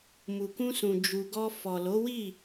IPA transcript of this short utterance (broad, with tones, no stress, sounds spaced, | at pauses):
m u˨ k ũ˧ s ũ˨ d͡ʒ u˨ ɡ ɔ˧ f ɔ˨ l o˨˦ w i˦˨